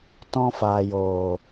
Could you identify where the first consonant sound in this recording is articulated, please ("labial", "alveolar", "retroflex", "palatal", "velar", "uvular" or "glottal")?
alveolar